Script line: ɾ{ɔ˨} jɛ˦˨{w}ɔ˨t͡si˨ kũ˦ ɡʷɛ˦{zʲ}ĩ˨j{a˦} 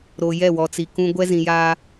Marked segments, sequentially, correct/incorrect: incorrect: o˨, correct, incorrect: z, incorrect: aː˦

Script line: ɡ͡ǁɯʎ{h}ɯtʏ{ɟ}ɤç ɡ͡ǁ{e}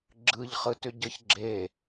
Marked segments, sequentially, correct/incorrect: incorrect: χ, correct, correct

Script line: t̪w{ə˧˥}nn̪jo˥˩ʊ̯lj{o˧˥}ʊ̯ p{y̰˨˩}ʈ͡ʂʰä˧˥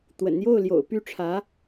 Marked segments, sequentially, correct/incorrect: incorrect: ə̰˨˩, incorrect: o̰˨˩, incorrect: y˥˩

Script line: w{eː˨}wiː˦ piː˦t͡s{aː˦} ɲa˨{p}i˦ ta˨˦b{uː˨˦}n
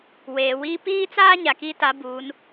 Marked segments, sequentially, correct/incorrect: correct, correct, incorrect: k, correct

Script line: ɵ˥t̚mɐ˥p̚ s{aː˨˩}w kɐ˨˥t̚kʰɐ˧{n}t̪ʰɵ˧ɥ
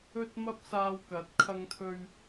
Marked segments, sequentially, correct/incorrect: incorrect: aː˧, incorrect: ŋ

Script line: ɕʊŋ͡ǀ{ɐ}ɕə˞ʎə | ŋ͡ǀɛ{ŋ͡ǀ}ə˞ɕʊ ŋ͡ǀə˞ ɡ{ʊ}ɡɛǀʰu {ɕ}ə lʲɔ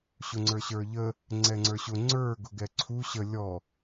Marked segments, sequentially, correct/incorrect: incorrect: ə˞, correct, correct, correct

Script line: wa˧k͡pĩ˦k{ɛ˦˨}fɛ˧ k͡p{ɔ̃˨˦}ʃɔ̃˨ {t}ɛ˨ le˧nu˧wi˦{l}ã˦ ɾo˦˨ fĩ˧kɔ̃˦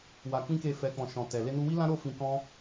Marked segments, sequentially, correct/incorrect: incorrect: e˦˨, incorrect: ɔ̃˨, correct, correct

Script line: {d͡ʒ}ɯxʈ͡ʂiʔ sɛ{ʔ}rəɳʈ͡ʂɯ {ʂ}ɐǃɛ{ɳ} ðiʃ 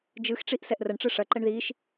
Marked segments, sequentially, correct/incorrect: correct, correct, correct, correct

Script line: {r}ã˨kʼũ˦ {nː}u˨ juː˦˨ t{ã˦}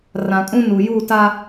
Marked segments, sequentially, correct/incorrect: correct, incorrect: n, incorrect: a˦

